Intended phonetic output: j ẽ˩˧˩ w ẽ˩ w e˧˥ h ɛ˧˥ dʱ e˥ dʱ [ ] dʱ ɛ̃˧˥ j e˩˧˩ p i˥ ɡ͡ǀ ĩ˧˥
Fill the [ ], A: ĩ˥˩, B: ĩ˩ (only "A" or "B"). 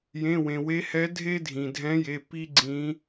B